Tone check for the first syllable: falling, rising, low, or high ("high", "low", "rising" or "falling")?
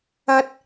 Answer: high